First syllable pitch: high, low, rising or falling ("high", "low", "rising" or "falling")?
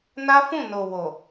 high